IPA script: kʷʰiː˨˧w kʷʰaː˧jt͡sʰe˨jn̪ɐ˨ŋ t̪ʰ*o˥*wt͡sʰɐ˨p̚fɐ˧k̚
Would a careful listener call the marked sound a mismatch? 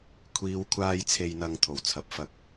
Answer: yes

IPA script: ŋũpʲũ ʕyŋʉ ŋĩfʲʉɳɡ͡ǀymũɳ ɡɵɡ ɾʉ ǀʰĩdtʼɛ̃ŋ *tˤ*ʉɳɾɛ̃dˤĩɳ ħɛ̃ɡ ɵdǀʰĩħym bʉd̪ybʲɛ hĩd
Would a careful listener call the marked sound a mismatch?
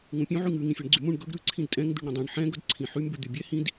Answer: yes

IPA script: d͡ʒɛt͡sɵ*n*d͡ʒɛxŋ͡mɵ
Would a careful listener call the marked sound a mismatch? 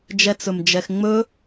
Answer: yes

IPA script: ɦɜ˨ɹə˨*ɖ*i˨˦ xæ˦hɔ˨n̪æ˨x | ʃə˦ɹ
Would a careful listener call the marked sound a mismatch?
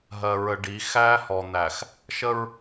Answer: no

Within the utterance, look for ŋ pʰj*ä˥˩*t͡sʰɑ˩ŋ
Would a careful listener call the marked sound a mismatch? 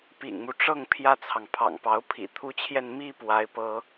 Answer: no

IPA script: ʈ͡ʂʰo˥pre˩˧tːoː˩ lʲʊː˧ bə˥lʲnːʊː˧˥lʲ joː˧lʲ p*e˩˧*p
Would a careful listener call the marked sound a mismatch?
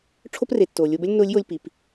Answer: yes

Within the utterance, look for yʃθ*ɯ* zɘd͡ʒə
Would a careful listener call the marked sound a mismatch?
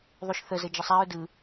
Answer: yes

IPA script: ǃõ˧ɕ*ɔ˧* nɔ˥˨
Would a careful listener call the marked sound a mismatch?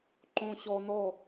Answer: no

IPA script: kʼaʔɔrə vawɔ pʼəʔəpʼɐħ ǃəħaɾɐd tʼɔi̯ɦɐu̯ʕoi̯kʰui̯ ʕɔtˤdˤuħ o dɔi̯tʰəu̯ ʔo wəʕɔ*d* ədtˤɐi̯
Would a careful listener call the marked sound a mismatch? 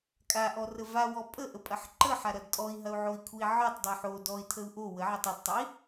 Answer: yes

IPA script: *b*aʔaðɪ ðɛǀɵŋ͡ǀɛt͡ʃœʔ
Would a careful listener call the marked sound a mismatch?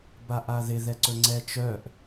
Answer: no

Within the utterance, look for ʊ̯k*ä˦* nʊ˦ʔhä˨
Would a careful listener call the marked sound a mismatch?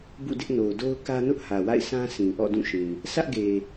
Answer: no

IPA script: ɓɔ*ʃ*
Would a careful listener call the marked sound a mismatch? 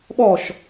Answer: no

